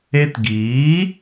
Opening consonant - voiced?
no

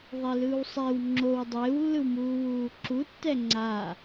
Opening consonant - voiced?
yes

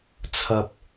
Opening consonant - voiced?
no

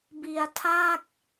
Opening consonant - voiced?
yes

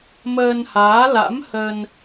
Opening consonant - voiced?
yes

